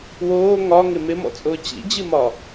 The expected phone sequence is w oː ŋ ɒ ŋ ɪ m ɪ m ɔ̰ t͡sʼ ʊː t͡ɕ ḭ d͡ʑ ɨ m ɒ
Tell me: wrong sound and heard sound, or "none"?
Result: none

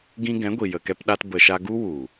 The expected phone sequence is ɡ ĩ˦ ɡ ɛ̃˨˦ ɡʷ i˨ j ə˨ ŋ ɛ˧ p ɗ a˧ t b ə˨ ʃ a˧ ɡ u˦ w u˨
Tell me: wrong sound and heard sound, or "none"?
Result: ŋ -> k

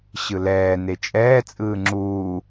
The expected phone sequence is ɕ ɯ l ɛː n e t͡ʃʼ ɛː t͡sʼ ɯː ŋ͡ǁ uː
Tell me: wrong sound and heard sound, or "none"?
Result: none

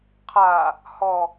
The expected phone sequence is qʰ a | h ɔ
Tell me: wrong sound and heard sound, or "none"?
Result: none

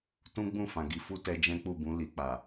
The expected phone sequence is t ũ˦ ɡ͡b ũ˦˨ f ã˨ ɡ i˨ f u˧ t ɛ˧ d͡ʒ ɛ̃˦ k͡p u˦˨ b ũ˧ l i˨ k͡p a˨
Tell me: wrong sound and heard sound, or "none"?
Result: none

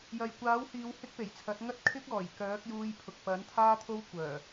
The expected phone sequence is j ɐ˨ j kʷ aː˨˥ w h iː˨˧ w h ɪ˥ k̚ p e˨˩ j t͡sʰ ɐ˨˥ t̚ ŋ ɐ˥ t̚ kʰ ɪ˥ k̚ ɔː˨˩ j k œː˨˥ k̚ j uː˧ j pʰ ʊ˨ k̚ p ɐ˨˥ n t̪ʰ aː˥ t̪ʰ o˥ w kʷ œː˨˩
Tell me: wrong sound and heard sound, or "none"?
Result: none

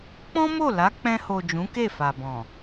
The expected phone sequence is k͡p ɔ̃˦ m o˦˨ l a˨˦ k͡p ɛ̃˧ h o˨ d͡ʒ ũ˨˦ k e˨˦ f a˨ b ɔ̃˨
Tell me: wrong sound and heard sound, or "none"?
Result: e˨˦ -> e˦˨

